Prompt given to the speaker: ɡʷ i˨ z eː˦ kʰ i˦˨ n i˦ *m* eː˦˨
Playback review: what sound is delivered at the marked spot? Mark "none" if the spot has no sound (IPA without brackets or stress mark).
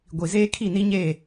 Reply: ɲ